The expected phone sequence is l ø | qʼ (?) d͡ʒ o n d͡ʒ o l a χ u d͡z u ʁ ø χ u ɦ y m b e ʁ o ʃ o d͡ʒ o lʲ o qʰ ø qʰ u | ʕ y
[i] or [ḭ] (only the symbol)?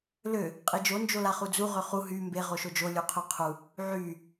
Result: i